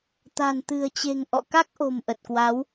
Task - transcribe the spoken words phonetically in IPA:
t̪ a̤˨˩ n t̪ ɨ̤˨˩ ə̯ t͡ɕ e̤˨˩ ŋ ʔ ɔ̰˧˨ k a˦˥ k̚ ʔ o̤˨˩ m ʔ ə˨˩ t̚ k w a˨˦ w

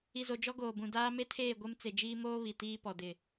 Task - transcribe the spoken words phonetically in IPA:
i˨ z o˨ d͡ʒ ɔ˦ ɡ oː˨ b ũ˨ d aː˦ m e˦ tʰ eː˦˨ ɡʷ e˦ m t͡s e˨ d͡ʒ iː˦ m oː˦ β i˨ t iː˦ p ɔ˨ d ɪ˨

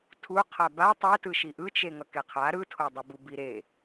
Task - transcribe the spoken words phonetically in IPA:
tʰ u qʰ a b a tˤ ɛ t ɯ ʃ i ʔ ɯ t͡ʃ e ŋ ʌ k e qʰ a ɾ ɯ tʰ o dˤ ɯ b u b i ɾ e

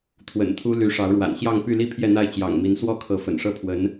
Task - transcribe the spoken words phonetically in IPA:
t̪ʰ w ə̰˨˩ n t̪ʰ u˥ l y˧˥ ʂ ɑ˧˥ ʊ̯ ɻ w a̰˨˩ n ɕ j ɑ˥˧ ŋ p y˥˧ l i˥˧ pʰ j ɛ˥˧ n̪ a˥˩ ɪ̯ t͡ɕ j ɑ̰˨˩ ŋ m i˧˥ n s w ɔ˥˩ kʰ ɤ˧˥ f ə̰˨˩ n ʂ ɤ˥˩ pʰ w ə˧˥ n

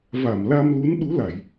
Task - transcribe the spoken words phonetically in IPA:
v a˧˩ m l a˧ m l u˨˦ n ɗ u˨˦ l a˧˩˨ j

